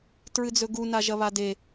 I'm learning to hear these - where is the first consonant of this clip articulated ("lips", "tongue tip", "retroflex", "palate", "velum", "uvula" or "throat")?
tongue tip